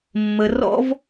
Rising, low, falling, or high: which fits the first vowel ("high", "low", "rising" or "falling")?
low